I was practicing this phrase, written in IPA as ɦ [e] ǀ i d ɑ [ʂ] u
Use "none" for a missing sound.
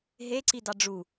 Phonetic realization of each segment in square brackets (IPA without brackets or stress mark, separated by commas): e, ɖ͡ʐ